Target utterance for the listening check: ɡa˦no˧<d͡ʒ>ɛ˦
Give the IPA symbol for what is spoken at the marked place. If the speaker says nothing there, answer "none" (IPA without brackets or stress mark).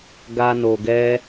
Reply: ɡ